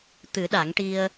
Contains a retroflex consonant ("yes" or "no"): yes